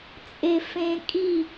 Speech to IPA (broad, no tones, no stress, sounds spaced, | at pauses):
t͡sʼ e f ẽ kʼ i